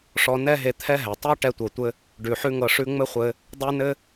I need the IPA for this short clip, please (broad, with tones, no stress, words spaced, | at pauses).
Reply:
ʂɔ˧nɛ˥ɦe˧ t̪ʰɛ˥ɦɛ˩ tˤʉ˥ ʈɛ˧tʷɤ˩tʷɘ˧ | ɖʉ˩ħʉ˥ŋɤ˧ʂʉ˥ ŋ͡mɘ˥χʷɘ˧ | dˤe˥nɘ˥